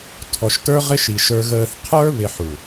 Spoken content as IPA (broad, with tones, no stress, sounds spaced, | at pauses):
tʰ ɔ˨ ʃ t ə˞˦ ʁ ɪ˦ ʃ i˨ ʃ ə˞˧ ɣ əː˧ θ qʰ ə˞˦ β ɪ˧ ħ u˨